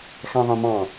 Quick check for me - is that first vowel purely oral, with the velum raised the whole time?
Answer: no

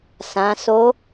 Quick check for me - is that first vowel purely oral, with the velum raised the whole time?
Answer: no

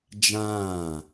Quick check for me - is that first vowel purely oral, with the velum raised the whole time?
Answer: no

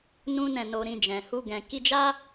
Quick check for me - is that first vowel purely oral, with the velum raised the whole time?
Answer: no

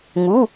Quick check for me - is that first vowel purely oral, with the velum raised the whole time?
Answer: yes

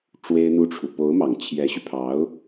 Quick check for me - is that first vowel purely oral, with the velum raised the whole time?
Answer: yes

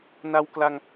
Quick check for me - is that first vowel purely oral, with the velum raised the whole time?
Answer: yes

